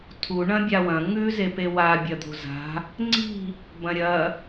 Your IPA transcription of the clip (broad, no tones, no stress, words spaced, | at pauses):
tʰu ɳɐ̃bʲawɐ̃ ŋʉ zepewa bʲɐd̪o̤za̤ | ŋ͡ǀi̤ | bɐ̃ɾʲɐ